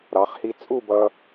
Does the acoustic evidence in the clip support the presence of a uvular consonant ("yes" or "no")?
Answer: yes